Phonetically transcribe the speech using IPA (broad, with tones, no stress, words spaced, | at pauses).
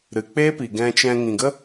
ɾɨ˨k͡peː˦pi˨ ɡɛ̃˧t͡ʃɛ̃˧ ŋĩ˨ɡə˦